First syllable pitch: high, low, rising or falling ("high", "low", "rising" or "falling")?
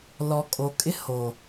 low